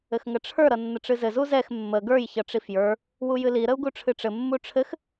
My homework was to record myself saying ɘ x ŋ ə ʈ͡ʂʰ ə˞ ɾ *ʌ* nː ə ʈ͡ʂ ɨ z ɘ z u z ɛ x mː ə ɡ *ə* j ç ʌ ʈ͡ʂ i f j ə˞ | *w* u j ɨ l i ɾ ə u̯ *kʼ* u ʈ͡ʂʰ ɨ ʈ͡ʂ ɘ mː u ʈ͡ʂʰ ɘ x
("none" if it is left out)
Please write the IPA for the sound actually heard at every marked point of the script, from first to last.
ʌ, ə˞, w, ɡ

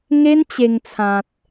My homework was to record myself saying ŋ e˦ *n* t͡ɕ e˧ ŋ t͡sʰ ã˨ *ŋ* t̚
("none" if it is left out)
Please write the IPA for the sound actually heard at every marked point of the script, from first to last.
n, none

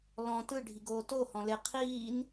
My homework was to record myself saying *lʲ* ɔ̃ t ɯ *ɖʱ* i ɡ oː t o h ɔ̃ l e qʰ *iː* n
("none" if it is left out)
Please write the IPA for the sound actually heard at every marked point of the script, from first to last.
l, ɖʱ, iː

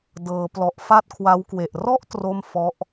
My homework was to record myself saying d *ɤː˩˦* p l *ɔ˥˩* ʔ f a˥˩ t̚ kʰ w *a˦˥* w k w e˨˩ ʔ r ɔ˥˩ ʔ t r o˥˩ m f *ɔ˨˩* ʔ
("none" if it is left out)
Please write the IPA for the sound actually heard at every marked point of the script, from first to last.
ɤː˩˦, ɔ˨˩, a˦˥, ɔ˦˥

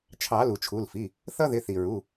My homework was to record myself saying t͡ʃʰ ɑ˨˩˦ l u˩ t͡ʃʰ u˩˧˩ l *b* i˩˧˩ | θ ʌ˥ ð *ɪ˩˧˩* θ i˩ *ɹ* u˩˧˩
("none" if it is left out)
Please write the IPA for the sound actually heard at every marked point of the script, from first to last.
f, ɪ˩˧˩, ɹ

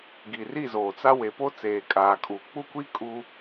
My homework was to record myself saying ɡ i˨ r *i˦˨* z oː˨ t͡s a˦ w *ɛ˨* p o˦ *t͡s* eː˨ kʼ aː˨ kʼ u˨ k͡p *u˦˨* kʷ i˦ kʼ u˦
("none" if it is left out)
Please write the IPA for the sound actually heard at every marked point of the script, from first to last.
i˦˨, e˨, t͡s, u˦˨

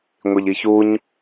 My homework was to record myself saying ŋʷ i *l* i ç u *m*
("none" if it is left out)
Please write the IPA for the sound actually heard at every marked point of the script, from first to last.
ʎ, ɲ

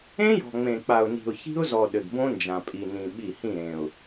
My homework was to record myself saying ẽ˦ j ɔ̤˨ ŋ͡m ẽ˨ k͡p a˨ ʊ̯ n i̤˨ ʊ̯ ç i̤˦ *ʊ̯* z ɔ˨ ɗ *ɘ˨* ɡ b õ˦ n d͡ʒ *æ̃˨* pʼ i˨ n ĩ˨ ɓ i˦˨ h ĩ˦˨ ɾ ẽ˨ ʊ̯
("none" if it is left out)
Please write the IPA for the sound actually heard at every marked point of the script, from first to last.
ʊ̯, ɘ˨, ã˨

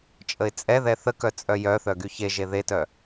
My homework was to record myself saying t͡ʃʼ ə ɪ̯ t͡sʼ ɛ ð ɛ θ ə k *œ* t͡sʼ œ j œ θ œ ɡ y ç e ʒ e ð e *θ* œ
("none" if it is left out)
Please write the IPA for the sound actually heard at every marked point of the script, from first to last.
œ, t

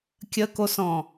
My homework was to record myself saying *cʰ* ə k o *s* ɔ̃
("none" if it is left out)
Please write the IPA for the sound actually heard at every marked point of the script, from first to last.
kʲ, s

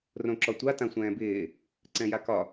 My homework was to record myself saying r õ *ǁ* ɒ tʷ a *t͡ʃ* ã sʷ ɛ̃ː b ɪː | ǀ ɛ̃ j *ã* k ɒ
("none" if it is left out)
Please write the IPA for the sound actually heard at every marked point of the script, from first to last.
ǁ, t, a

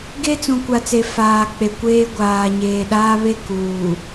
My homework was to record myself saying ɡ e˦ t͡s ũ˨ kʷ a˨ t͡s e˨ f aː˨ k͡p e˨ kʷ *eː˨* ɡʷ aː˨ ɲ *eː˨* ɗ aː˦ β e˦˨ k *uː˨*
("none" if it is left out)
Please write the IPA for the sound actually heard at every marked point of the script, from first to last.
eː˦, eː˨, uː˨

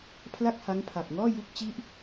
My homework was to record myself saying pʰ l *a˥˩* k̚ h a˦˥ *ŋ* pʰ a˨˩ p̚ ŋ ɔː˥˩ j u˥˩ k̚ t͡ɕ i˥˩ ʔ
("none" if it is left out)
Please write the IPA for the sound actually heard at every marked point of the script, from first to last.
a˥˩, ŋ

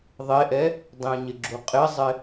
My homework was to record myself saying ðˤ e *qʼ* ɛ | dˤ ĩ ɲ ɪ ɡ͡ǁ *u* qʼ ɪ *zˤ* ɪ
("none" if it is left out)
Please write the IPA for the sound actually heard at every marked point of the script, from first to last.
ʔ, u, zˤ

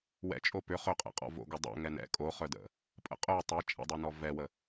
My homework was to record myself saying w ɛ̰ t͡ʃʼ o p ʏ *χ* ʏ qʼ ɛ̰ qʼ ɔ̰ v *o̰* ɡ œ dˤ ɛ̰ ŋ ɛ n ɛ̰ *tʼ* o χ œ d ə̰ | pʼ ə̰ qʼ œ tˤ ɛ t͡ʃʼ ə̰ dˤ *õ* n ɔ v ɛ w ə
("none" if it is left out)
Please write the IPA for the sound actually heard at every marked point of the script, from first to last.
χ, o̰, kʼ, o

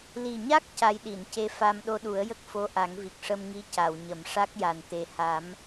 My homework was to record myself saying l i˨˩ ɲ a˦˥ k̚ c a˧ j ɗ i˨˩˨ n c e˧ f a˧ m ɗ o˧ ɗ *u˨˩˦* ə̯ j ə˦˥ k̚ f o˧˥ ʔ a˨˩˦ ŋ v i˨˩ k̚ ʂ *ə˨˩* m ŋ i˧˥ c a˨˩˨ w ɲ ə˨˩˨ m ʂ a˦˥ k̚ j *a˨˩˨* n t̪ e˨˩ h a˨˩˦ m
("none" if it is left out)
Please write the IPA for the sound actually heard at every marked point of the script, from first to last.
u˨˩˦, ə˧, a˨˩

